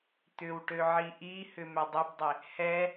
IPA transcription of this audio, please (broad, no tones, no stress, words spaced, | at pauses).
t̪ʏwʈøʕi ʔihʏ mʏdˤʏbdˤɪ | hɛ